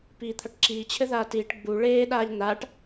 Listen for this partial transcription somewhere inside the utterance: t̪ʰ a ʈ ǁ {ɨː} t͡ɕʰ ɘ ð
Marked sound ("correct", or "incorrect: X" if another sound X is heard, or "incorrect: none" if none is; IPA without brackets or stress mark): incorrect: iː